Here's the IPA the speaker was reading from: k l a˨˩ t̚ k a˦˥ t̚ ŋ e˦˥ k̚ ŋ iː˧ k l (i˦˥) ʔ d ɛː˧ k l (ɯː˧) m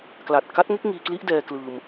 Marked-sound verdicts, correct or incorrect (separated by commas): correct, correct